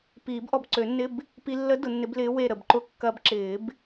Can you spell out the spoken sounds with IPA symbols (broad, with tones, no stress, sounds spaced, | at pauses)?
p iː˨˩˦ b ʔ ɔ˧˩ b ǀ ø˨˩˦ nː ɪ˧˥˧ b | p i˧ lː ə˧˥ d ʊ˨˩˦ nː ɪ˧˥ b l ɪː˧˥ w e˧˩ ɾ ə˧˩ b ǃ ʊ˧ kː ɐː˧ b ǁ ɪː˨˩˦ b